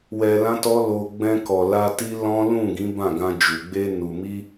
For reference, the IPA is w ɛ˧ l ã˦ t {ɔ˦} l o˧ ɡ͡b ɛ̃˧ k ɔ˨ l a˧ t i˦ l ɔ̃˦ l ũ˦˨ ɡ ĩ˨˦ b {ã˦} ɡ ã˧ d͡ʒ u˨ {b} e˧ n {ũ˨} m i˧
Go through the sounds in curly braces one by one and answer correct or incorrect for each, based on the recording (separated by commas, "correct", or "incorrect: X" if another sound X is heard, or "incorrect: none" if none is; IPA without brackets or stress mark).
correct, incorrect: ã˦˨, incorrect: ɡ͡b, incorrect: u˨